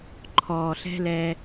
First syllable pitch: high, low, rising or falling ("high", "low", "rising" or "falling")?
low